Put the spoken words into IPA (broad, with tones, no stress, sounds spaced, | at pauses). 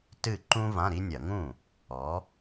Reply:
t ɨ˥˩ ǃ ũ˥ v ã˧˥˧ ɾ i˥ nʲ ɐ˧˩˧ ŋ ũ˥˩ | ɔ˩˥